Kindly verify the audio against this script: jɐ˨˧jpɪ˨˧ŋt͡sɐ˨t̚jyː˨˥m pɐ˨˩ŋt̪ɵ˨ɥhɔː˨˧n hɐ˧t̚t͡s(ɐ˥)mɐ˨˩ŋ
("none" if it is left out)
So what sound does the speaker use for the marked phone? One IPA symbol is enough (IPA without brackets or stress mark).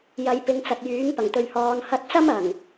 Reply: ɐ˥